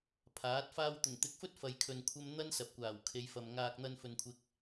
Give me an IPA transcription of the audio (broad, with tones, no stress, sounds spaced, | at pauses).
pʰ aː˨˥ t̚ f aː˥ w t̪ ʊ˨˩ ŋ t̪ ɪ˨˥ k̚ f ɵ˥ t̚ f ɐ˧ j kʰ ɵ˧ n kʷʰ ɐ˥ m n̪ ɐ˥ n s ɐ˨ p̚ kʷ aː˨˩ w kʰ e˨˧ j f ɐ˨ m ŋ aː˧ k̚ n̪ ɐ˧ n f ɵ˨ n kʷʰ ɪ˨ k̚